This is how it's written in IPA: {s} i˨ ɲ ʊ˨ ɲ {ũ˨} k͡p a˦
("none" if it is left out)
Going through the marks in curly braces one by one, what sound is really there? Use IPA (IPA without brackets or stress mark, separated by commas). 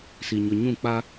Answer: s, ũ˦˨